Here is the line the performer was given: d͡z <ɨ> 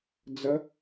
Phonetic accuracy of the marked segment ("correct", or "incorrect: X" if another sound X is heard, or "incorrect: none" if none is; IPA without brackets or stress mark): incorrect: ə